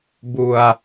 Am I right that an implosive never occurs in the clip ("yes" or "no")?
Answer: yes